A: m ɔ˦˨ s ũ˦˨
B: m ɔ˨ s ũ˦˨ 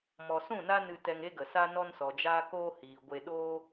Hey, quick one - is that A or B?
B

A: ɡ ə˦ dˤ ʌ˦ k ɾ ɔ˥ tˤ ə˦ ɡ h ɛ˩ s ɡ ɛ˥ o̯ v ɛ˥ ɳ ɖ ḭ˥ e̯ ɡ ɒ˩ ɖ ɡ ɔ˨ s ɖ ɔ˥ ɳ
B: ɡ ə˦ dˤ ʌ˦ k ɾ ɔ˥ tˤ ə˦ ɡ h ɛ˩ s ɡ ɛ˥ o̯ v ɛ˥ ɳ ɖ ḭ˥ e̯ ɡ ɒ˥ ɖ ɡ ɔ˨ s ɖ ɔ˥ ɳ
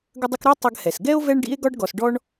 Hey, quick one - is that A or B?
B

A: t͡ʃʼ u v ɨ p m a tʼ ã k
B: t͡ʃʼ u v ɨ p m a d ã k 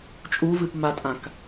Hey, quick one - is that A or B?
A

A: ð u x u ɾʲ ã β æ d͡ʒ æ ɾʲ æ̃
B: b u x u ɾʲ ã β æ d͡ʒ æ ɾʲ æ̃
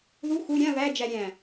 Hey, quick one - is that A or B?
A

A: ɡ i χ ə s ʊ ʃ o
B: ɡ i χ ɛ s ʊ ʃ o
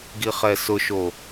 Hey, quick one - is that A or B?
B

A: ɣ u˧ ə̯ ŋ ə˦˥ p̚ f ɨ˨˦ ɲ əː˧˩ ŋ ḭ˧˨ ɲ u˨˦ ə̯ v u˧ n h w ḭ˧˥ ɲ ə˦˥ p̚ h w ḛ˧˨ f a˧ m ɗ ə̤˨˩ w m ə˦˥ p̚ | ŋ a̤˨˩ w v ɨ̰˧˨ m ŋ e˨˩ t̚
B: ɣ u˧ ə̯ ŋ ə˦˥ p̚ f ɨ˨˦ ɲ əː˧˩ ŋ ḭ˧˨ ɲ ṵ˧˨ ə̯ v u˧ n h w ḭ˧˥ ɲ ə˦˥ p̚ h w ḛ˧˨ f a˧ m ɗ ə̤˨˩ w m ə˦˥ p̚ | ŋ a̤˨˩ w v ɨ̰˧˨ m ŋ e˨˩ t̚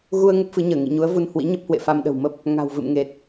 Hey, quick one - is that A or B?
A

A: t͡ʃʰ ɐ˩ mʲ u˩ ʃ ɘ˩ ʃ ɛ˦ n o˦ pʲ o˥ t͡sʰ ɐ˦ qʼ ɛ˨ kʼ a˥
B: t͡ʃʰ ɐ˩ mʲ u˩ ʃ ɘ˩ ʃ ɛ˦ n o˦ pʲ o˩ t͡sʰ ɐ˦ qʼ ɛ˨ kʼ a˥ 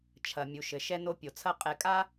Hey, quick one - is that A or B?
B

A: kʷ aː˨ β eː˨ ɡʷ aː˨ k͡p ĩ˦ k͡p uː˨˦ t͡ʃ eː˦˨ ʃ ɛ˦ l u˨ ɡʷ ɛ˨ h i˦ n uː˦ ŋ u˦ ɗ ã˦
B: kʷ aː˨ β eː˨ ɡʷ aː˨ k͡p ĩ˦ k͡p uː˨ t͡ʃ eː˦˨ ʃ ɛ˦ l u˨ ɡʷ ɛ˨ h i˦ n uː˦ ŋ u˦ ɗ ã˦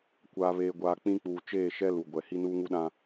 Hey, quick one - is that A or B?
B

